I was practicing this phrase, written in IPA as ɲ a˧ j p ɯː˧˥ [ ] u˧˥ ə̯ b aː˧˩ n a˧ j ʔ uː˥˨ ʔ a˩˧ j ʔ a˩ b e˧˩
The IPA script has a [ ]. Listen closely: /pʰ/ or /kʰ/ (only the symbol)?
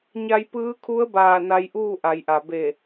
kʰ